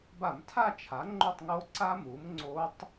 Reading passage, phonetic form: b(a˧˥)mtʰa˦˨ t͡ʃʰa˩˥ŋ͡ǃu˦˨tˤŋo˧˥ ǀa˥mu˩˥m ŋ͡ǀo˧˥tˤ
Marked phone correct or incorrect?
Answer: incorrect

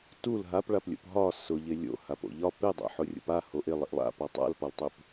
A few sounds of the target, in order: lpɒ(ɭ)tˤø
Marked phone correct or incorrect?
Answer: incorrect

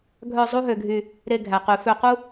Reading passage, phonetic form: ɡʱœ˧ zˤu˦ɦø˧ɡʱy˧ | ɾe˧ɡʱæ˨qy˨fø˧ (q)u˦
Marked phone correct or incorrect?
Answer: correct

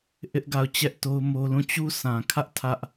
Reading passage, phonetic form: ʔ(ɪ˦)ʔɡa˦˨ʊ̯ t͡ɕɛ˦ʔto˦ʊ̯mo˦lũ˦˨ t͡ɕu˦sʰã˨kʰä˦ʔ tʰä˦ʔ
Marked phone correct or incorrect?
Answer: correct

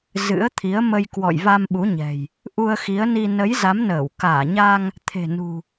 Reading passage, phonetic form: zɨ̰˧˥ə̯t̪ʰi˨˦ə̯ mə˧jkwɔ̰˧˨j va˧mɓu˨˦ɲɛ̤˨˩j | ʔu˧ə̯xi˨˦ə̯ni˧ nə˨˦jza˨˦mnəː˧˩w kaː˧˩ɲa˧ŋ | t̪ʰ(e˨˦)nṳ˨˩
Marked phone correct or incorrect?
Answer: incorrect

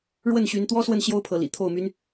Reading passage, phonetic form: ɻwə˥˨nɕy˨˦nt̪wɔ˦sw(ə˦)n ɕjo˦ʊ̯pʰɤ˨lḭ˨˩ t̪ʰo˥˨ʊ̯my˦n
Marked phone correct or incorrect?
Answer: incorrect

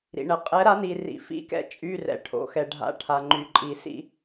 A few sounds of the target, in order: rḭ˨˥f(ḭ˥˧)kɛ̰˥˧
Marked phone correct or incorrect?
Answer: incorrect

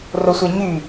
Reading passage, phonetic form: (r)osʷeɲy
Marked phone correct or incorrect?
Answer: correct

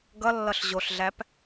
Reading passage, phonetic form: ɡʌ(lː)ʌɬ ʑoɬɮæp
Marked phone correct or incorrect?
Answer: correct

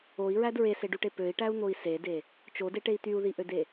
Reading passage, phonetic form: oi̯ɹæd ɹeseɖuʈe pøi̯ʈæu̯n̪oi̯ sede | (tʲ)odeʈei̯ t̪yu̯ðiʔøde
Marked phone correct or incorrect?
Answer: incorrect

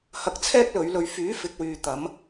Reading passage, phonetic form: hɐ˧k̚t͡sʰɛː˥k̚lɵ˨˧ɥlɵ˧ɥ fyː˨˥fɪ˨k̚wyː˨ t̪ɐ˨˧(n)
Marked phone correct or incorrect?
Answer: incorrect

